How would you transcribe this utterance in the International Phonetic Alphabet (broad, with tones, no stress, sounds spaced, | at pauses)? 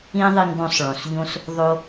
ĩ˥ ðˤ i˧ ŋ ɡ õ˧ sˤ ɭ õ˩ s ʎ õ˧ s | ðˤ o˧